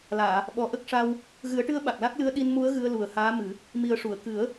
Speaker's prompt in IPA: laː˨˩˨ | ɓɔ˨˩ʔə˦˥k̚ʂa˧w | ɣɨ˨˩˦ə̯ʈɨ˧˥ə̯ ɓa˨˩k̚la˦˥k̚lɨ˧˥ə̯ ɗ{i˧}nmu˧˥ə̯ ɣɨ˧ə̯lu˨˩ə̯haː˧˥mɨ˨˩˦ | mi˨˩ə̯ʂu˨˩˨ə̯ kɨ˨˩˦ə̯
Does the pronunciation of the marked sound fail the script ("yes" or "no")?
no